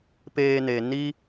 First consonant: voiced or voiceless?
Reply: voiceless